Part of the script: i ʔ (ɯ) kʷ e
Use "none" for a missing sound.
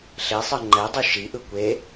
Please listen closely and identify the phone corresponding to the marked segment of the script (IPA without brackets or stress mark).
ɯ